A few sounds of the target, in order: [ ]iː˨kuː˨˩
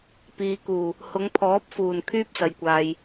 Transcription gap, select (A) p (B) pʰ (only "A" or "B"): A